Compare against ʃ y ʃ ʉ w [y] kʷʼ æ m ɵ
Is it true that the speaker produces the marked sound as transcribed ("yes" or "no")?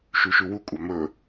no